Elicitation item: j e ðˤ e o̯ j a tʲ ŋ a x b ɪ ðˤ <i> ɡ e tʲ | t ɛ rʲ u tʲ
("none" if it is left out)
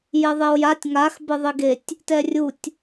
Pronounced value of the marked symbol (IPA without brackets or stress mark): i